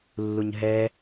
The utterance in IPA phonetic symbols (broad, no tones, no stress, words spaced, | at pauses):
lːuɲɦɛ